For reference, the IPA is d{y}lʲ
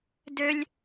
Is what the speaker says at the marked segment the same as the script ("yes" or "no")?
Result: no